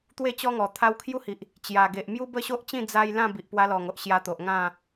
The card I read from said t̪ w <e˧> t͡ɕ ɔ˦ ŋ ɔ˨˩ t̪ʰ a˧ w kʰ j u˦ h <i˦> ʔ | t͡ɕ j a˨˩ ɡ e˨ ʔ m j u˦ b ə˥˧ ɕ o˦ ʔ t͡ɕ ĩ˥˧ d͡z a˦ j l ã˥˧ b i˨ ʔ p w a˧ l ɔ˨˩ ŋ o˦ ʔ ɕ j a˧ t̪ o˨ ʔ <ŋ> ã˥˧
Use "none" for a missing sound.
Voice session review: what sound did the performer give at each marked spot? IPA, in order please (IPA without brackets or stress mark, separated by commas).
e˥˧, i˨, ŋ